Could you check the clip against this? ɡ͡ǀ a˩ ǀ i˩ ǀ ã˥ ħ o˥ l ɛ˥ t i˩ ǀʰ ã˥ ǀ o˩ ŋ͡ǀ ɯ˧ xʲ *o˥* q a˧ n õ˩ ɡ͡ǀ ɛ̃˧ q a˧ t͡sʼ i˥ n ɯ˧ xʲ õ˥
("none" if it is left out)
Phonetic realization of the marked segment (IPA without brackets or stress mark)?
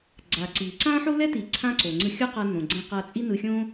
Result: o˥